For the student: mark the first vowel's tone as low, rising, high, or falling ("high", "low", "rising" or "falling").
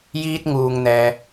high